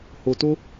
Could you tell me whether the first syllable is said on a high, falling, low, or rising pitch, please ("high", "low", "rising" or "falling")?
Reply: low